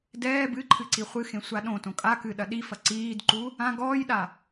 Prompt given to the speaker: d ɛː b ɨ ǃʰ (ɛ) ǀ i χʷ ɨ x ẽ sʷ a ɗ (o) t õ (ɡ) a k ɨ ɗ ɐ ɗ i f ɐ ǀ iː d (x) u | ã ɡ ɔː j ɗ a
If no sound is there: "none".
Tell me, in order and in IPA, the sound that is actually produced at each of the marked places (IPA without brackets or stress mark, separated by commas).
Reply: ɨ, õ, kʼ, ǃ